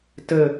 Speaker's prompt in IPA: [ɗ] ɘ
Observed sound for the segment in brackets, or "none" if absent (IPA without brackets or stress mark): t